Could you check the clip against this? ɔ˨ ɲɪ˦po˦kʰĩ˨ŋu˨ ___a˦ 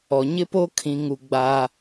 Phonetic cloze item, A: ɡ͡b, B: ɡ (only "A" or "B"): A